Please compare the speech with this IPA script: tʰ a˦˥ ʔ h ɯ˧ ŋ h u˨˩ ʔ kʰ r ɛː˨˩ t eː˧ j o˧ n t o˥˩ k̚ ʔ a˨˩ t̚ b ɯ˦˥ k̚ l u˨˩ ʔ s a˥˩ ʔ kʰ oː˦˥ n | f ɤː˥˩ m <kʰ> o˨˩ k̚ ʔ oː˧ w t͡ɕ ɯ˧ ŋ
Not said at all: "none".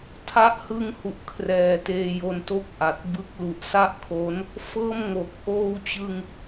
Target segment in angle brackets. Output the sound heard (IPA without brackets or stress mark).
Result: ŋ